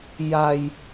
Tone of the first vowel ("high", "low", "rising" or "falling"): low